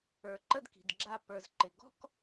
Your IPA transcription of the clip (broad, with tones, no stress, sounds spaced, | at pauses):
ə˞˨ ǃ ə˦ d k i̤˨ d ɡ͡ǁ a˦˨ p ə˞˨ z ǃ ɪ˨ ɡ ɔ̤˦ k